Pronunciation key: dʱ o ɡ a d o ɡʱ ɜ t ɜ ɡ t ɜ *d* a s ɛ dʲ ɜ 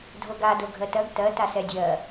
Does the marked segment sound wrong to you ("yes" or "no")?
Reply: yes